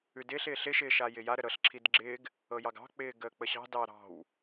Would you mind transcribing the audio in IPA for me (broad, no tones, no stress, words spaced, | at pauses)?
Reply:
ʉdɪːɬ ɪːɬɪ ʃɪːʃajɪja ɾəɾɤɬ ǁʰidɡ͡ǁɪːɡ | ɤjɑɡɑ̤ k͡pɪːɡəːk͡pəɕɑ̤ dɑɾɑ̤w